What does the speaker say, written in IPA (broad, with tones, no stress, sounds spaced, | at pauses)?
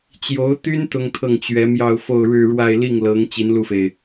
t͡ɕ j o˧˥ ʊ̯ t̪ y˥ n t̪ ʊ˥ ŋ t̪ʰ ɤ˥˩ ŋ t͡ɕ ɥ ɛ˧˥ m j ɑ˥˧ ʊ̯ f o˥˧ ʊ̯ ɻ ɻ̩˥˧ ɻ w a˥˧ ɪ̯ l i˥˩ ŋ l ɤ˧˥ ŋ t͡ɕ i˧˥ n l u˥˩ f e˩ ɪ̯